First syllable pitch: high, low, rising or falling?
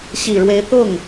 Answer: low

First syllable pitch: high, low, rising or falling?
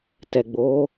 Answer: low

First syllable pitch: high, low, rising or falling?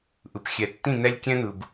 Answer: low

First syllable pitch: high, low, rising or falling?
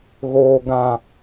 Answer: low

